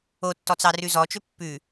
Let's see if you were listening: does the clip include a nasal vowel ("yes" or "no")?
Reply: no